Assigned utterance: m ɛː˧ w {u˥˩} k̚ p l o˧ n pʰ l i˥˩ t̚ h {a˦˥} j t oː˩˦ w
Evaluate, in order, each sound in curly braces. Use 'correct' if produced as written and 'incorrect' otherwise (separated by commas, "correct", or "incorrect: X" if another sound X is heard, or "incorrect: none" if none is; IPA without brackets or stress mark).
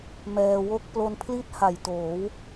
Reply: incorrect: o˥˩, incorrect: a˨˩